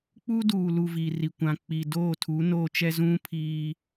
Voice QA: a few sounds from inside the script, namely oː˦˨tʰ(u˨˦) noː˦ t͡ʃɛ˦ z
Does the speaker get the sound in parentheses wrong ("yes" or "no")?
no